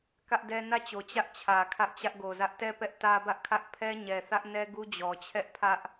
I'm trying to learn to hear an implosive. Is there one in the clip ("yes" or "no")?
no